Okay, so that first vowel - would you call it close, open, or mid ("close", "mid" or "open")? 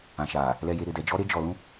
open